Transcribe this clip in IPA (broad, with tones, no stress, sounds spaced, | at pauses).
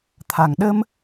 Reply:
t̪ʰ a˨˩˨ ŋ ɗ ə˧ m